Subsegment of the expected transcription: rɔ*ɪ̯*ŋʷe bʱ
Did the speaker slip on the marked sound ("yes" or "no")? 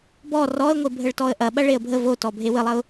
yes